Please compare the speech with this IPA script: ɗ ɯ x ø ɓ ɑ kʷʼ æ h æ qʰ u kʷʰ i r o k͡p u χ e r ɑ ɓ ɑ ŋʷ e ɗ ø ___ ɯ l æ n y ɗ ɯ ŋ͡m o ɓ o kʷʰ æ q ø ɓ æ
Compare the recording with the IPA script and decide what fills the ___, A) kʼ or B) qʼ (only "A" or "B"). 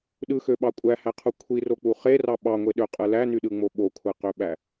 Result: B